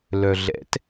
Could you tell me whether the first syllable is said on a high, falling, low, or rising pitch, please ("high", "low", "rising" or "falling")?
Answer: low